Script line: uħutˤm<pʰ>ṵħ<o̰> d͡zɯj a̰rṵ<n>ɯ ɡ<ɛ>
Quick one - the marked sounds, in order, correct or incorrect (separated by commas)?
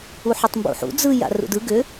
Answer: incorrect, incorrect, incorrect, incorrect